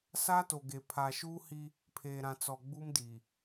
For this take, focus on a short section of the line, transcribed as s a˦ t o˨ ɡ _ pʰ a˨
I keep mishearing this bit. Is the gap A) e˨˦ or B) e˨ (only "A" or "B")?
B